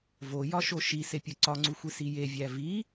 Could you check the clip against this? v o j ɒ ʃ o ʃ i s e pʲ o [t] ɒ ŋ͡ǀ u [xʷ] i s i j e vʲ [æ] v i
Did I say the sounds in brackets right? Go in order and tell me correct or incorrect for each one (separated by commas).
incorrect, correct, correct